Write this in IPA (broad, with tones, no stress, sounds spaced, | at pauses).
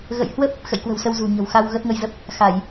ɣ ə̰˧˨ j h w ə˦˥ p̚ | x ə̰˧˨ j k w ə̤˨˩ w s ə˧ w z ṳ˨˩ ɲ ə̤˨˩ w x a˧ w ɣ ə˦˥ t̚ ŋ ə˧ j z ə˦˥ p̚ | x a˧˩˨ j